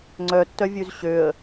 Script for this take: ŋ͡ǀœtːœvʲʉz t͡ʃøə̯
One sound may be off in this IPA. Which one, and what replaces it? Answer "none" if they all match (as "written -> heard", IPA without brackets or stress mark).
t͡ʃ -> ɕ